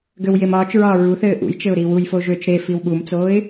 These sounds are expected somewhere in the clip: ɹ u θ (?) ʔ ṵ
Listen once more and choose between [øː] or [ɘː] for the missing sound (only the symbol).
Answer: ɘː